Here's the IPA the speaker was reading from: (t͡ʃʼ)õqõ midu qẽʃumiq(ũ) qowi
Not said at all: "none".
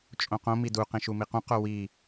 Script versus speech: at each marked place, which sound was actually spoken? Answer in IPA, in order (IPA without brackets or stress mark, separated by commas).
t͡ʃʼ, ũ